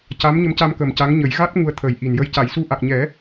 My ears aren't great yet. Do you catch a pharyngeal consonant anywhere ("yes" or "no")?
no